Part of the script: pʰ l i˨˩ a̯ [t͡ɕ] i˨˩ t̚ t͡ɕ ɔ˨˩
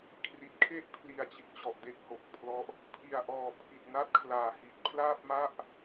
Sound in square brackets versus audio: correct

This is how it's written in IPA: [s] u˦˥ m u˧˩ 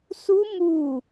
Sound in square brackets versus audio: correct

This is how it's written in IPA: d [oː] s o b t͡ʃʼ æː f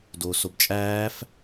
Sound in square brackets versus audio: correct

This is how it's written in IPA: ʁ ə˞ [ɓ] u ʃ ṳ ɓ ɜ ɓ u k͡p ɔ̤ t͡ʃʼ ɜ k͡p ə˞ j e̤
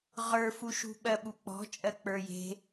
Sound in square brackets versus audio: incorrect: f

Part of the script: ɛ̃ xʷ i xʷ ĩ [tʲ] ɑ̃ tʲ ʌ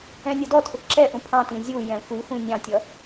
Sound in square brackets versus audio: incorrect: nʲ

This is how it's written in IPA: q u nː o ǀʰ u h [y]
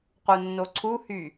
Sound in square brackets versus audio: correct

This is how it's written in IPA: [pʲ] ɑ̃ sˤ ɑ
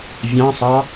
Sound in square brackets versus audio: incorrect: vʲ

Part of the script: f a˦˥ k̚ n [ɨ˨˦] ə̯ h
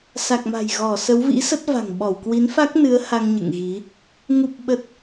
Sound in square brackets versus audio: correct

